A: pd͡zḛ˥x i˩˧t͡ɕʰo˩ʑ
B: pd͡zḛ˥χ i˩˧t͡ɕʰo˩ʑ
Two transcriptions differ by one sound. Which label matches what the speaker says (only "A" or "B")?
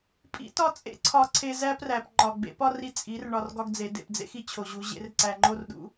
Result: A